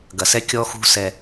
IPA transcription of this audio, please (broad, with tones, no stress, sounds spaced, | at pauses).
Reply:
ɡ ɐ˨ s ɛ˦ kʲ ɔ˦ x ṳ˦ s ɛ˦